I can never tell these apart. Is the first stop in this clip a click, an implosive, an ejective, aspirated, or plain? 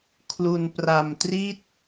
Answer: aspirated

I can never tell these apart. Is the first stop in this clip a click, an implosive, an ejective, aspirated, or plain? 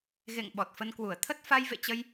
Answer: implosive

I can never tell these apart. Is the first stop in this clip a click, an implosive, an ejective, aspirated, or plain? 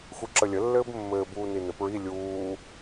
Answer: click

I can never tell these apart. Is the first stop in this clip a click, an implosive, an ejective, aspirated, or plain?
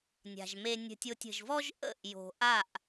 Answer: plain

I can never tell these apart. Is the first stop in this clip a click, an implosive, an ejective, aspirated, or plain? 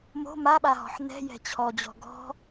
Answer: implosive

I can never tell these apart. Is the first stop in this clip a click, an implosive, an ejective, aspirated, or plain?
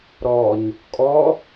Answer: ejective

